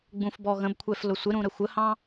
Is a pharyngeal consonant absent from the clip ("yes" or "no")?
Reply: yes